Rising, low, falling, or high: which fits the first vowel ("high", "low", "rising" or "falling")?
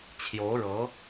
rising